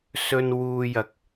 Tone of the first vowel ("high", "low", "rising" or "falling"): low